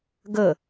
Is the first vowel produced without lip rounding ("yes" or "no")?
yes